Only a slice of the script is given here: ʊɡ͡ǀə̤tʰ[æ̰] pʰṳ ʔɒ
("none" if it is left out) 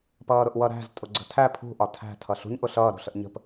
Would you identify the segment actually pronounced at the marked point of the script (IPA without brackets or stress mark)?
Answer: æ